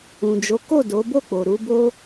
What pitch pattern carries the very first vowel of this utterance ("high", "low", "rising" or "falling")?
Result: low